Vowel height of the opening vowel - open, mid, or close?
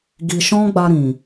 close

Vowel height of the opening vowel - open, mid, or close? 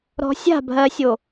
mid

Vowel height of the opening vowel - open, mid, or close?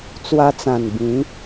open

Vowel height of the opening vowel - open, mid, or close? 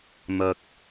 open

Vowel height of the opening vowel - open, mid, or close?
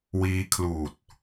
close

